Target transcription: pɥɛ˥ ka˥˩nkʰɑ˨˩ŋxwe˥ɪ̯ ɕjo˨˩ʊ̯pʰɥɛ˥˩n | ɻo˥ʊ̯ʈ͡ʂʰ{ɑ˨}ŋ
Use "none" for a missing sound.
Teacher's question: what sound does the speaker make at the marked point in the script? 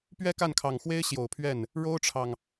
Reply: ɑ˨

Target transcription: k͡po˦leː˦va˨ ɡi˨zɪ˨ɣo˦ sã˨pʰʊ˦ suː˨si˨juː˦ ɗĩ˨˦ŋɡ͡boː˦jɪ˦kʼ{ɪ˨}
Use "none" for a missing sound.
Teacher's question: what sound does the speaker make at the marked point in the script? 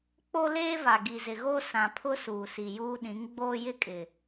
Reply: ɪ˨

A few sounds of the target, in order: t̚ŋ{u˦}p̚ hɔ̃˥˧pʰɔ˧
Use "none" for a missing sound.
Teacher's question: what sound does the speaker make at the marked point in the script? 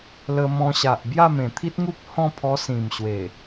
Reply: u˦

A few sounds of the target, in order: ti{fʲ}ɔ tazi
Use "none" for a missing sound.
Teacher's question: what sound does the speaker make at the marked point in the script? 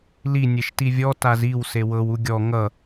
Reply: vʲ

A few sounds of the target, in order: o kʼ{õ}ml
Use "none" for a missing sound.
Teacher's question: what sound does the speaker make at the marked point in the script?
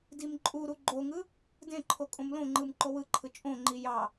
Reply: õ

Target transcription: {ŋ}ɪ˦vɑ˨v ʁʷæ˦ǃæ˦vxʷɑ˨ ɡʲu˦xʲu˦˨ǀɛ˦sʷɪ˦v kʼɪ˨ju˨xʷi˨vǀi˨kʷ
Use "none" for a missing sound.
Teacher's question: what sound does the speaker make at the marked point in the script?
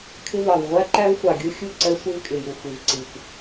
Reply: kʰ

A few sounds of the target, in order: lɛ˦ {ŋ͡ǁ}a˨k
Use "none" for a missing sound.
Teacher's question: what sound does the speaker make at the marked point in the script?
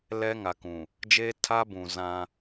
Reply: ŋ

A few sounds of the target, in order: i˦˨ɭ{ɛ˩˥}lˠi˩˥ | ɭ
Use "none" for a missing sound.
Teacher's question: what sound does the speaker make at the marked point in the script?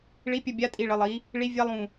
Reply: ə˩˥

